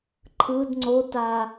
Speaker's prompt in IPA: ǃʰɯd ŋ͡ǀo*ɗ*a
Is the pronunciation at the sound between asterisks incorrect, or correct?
incorrect